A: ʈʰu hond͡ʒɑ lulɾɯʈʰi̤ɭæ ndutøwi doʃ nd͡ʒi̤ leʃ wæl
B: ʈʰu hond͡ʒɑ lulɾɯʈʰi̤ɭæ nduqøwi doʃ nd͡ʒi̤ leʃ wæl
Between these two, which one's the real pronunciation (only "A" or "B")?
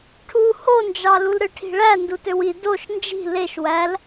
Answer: A